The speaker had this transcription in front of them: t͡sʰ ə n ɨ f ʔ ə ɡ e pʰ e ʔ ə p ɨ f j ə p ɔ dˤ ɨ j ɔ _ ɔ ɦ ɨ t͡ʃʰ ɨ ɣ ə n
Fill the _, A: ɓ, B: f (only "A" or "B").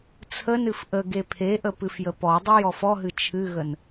B